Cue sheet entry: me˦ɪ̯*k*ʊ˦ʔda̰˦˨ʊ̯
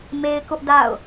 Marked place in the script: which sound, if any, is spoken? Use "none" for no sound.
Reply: k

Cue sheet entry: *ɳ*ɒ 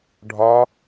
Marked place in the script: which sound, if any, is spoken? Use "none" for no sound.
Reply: ɖʱ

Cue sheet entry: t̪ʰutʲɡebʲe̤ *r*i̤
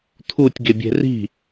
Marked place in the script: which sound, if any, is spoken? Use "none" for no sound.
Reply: r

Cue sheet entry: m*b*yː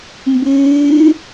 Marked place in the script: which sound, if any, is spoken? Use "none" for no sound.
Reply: b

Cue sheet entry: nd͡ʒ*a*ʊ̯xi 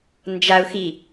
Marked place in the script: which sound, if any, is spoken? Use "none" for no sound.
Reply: a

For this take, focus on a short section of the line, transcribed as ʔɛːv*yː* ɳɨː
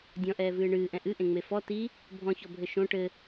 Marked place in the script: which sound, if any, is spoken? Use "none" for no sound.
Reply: ɨː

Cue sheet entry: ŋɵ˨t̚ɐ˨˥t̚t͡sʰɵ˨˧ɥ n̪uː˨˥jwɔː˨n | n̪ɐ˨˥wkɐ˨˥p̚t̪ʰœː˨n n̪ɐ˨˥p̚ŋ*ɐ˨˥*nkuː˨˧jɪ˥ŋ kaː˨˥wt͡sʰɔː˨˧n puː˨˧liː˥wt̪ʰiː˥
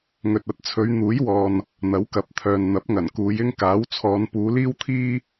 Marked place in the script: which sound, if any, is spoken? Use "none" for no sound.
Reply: ɐ˨˩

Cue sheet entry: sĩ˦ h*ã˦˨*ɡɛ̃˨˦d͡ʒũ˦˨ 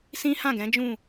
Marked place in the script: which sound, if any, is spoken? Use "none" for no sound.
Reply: ã˦˨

